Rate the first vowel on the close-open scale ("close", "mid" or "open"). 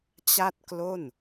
open